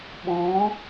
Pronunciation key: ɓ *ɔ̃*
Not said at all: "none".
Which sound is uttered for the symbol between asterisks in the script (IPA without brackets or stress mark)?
ɔ̃